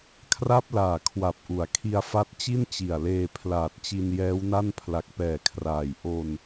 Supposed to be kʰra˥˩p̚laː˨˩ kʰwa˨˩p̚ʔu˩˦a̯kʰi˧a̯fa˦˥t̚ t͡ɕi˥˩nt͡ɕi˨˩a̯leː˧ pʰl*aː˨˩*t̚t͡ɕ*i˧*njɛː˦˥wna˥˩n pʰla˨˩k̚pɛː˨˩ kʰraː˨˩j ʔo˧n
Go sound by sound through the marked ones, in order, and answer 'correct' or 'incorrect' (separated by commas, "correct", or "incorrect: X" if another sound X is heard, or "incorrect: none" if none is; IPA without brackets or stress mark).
correct, correct